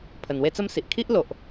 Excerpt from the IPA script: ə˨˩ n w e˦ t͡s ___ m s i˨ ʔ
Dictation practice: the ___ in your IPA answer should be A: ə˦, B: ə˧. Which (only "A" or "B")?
A